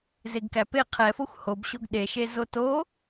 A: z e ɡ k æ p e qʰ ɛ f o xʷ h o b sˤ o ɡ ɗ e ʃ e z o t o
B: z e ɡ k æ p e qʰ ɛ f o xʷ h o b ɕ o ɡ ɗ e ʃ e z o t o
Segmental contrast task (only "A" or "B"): B